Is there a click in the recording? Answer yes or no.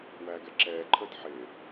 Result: yes